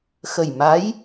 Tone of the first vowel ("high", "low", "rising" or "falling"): low